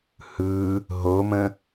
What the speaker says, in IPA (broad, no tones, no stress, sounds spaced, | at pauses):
h ɯ | ɦ o m ə̃